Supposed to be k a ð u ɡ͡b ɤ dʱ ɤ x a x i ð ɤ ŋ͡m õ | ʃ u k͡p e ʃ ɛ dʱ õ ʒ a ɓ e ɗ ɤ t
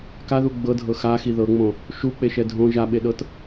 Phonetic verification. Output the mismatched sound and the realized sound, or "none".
none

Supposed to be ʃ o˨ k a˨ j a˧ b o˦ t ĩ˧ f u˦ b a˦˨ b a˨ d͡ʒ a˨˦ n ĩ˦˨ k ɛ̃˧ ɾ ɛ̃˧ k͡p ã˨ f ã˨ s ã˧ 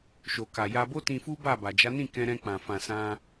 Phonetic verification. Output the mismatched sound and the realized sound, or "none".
none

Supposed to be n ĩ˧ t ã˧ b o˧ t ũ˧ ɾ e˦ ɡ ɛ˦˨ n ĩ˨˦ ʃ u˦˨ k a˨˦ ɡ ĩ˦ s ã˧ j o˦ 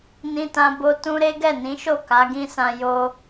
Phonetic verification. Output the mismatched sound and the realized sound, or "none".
u˦˨ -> o˦˨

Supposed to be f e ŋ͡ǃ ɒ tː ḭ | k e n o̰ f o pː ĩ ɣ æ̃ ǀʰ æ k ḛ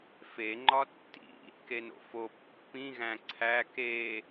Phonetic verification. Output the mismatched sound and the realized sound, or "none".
ḛ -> e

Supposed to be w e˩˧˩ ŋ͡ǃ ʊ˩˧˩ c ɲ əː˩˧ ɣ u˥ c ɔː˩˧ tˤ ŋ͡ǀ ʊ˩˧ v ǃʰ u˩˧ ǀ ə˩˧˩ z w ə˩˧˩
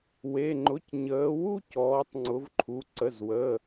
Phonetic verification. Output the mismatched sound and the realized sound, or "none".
ɣ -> w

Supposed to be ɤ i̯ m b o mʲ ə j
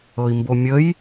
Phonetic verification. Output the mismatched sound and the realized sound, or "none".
none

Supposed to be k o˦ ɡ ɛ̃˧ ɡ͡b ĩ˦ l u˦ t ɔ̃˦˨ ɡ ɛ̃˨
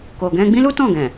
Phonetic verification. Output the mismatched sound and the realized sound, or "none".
o˦ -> o˨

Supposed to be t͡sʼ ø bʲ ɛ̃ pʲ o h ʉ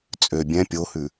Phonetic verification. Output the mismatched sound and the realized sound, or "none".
none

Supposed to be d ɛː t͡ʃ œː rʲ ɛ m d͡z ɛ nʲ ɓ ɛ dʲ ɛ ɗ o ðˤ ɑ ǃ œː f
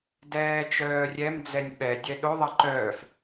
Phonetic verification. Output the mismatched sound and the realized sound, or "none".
none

